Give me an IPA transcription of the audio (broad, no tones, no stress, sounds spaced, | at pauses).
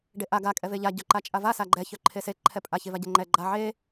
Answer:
ɖ e ʔ a ɡ a kʼ ɛ v e ʎ a ɟ œ ǃ a t͡ʃʼ a v a s a ɡ͡ǃ ɛ ç œ ǃʰ e s e ǃʰ ɛ pʼ a ç e v a ɟ e ŋ͡ǃ ɛ ɡ͡ǃ a ʕ e